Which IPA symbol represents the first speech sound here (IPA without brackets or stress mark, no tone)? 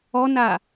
ɔ